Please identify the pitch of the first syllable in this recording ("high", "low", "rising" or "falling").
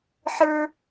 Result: high